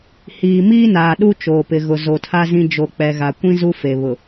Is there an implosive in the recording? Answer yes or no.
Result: yes